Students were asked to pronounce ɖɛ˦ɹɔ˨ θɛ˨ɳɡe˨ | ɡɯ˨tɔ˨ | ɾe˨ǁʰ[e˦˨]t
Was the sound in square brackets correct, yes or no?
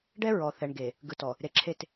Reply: yes